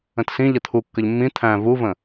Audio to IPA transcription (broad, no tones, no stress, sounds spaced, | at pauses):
ə̃ t s ĩ ʎ ə t̪ʰ u kː ə ʎ mː ĩ t̪ʰ æ̃ v u v ə̃